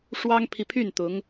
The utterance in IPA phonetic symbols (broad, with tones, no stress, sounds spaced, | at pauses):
ʂ w ɑ˥ ŋ pʰ i˨ pʰ y˥˩ n t̪ ʊ˧˥ ŋ